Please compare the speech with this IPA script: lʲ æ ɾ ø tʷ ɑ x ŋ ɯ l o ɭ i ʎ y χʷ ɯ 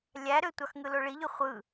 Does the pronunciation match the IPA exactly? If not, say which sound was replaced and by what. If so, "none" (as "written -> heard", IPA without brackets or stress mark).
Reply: none